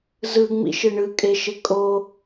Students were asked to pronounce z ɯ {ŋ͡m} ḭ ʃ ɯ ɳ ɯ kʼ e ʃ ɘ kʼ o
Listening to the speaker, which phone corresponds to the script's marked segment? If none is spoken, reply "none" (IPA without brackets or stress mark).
ŋ͡m